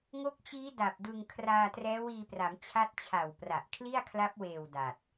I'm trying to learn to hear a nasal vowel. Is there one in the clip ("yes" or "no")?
no